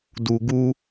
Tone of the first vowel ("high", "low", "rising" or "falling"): low